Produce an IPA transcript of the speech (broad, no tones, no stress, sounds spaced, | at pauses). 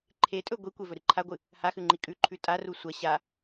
ǃʰ e tʼ ɵ ɡʷ i kʷ e v ɵ ɾ ɨ ǃʰ a ɡʷ ɨ | h a x ʉ ŋ͡ǃ i kʼ ʉ ǃʰ ʉ tʼ a r u sʷ ɐ ɕ a